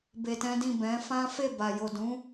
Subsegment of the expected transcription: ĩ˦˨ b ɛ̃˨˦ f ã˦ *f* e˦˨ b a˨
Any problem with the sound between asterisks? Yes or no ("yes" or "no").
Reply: no